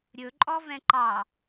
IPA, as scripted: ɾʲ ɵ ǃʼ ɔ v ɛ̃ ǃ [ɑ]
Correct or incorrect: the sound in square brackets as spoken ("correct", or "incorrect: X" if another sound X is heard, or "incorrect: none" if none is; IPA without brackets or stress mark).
correct